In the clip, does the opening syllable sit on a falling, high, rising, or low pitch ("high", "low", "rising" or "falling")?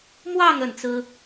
falling